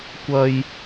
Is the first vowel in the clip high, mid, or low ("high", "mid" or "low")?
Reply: low